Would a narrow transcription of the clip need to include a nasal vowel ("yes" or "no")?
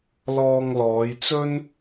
no